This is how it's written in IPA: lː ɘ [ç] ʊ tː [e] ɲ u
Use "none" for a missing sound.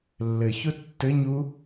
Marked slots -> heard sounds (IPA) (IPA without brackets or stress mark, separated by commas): ç, ɘ